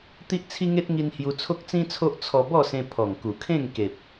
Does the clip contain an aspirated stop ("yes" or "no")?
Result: yes